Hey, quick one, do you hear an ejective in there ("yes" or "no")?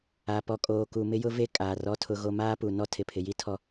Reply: yes